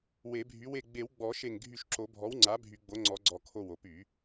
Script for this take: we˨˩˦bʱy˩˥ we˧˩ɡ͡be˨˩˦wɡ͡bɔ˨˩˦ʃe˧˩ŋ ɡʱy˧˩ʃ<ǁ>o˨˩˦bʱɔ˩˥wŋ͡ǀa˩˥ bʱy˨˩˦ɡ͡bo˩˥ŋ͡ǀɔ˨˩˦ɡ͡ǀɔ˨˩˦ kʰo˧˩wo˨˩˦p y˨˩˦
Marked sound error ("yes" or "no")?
no